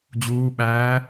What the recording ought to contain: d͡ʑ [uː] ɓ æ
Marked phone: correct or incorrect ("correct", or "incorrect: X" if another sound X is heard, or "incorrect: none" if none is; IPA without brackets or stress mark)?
correct